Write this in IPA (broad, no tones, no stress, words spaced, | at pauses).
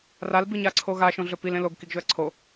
ral biɲaǀʰoɣa ʃõɮɵpil ẽloɡ kiɡʒɵɐ̯ǀʰo